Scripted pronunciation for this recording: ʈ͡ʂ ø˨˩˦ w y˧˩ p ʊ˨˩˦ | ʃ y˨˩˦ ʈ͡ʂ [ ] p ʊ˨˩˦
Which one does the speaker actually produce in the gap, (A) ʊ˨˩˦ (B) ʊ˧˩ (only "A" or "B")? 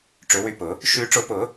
A